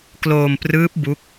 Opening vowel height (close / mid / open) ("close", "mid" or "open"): mid